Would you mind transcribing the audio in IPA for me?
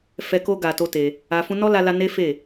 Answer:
f ɛ˧ k o˦ ɡ a˧ t o˦ t e˧ | a˧ f ũ˧ n ɔ˦ l a˧ l a˧ n e˦ f e˦˨

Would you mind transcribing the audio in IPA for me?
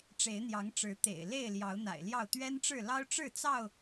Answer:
ʈ͡ʂ e˨˦ ɪ̯ n̪ j ɑ˨˦ ŋ ʈ͡ʂ ɻ̩˨˦ t̪ ḛ˨˩ ɪ̯ l e˥˨ ɪ̯ l j ɑ˨˦ ʊ̯ n̪ a̰˨˩ ɪ̯ l j ɑ˥˨ ʊ̯ t̪ ɥ ɛ˦ n ʈ͡ʂ ɻ̩˥˨ l ɑ˦ ʊ̯ ʈ͡ʂ ɻ̩˥˨ t͡s ɑ˥˨ ʊ̯

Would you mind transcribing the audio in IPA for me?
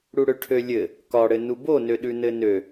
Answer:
ɽ u ɽ ø ʈʰ ø lʲ ɘ | k ɒ ɽ ɘ n u b o n ø ɗ ʉ n ɘ n ø

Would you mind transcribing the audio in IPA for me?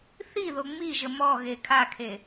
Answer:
θ i ð o ŋ͡m i ʒ ə m ɔ ɣ e kʰ a kʰ e

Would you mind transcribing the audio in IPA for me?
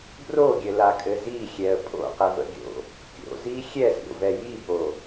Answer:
b r o ɡʲ ɘ l a kʼ ɘ z i xʲ ɛ ə̯ pʼ o̰ q ɛ v ə̰ ɡʲ o̰ | kʲ o̰ z i xʲ ɛ z ɾʲ o̰ v ɛ j i b o

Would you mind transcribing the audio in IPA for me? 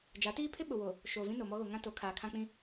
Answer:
d͡ʒ a˨˦ t iː˦ pʰ ɪ˦ ɓ ʊ˨ w o˨ | ʃ oː˨ v ĩ˦ n o˨ m ɔ˦ ɣ o˨ ŋ ã˦ t o˨˦ kʰ aː˨ kʰ ã˦ k͡p ĩ˦

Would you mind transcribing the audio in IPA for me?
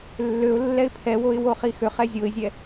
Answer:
lː ø ʊ̯ lː ɛ ɪ̯ pʰ ɛ w o ɪ̯ w o χ i x ø χ ɛ zʲ o ɪ̯ zʲ ɛ

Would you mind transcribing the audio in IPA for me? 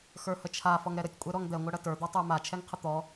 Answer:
x ə˞ h ə t͡ʃʰ a f ɔ ŋ ɾ ɛ ɾ ə tʲ kʷʼ ɛ ɾ ɔ ŋ d̪ ɛ ŋʷ ɐ ɽ ɐ t ə˞ d̪ ɔ tˤ ə˞ m a t͡ʃʰ ɛ ŋ qʰ ə t̪ ɔ

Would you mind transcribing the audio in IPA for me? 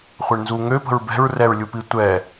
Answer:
χʷ ɛ ɳ n z u ŋ ø p ə̤ ɹ b ɛ̤ ɹ r ɛ ɹ lʲ u p i tʷ ɛ

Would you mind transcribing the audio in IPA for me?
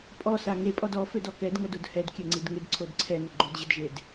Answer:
pʼ ɔ s a ŋ e pʼ ɔ d ɔ f ø d ɔ k ɛ d ŋ ʌ d o d h ɛ d kʲ ɛ ŋ͡ǀ i d ŋ ɪ d ǀʰ o d ǀʰ ɛ n ɪ ɡ͡ǃ o d ʑ ɪ d ʒ e d

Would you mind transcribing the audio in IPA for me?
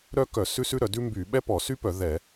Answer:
ɾ œ˥ k œ˧˩˧ s ʉ˥ s ʉ˥ ɾ œ˧˩˧ d ʉ˥ m b y˧˩˧ ɓ ɛ˥ p ɔ˧˩˧ s y˥ p œ˧˩˧ ð ɛ˧˩˧

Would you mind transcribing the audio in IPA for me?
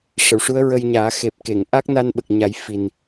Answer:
ʂ ə˨˩˨ w ʂ u˧˥ ə̯ ɹ ə˧ j ɲ aː˨˩˦ x e˨˩ p̚ k e˨˩˨ ŋ ʔ a˦˥ k̚ n a˧ n ɓ ə˨˩ k̚ ɲ a˨˩˦ j f i˨˩ n

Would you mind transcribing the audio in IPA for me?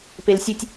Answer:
p e l sʲ ɘ tʲ

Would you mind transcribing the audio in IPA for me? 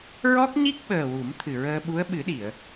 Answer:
ɹ ɔ˦˥ k̚ ɲ i˦˥ k̚ ɓ əː˨˩ w u˨˩˦ m t̪ʰ ɨ˨˩ ɹ əː˧ ɓ u˧˥ ə̯ ɓ ɨ˨˩˦ ɗ i˨˩˨ ə̯

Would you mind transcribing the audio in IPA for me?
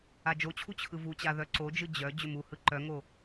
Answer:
a d͡ʒ o t͡ɕʰ u t͡ɕʰ ɯ v u t͡ɕ a ð œ ǀ o d͡ʒ ɯ d͡ʑ œ d͡ʑ ʏ m u h ɯ ǃ œ ŋ o

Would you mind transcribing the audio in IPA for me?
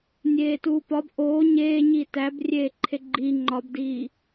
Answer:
nʲ eː t uː p ɒ b ʔ oː ɲ eː ɲ iː t æ b rʲ eː ǃʰ e ɡ͡ǃ i ŋ͡ǃ ɒ b d iː

